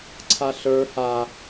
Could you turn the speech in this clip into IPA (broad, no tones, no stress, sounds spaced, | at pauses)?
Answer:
ǀʰ a ɬ ə˞ h a